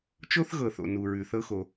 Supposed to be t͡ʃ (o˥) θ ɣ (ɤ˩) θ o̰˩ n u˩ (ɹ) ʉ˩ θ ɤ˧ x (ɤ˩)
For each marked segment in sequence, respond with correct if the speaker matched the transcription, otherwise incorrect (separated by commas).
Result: correct, correct, correct, incorrect